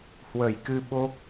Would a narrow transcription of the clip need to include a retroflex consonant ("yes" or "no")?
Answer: no